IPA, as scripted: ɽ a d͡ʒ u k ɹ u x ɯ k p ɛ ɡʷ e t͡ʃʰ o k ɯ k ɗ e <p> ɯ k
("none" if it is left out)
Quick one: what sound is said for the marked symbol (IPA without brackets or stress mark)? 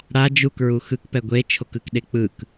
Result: k͡p